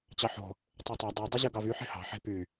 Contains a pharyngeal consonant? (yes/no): yes